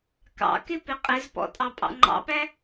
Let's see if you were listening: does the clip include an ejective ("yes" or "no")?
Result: yes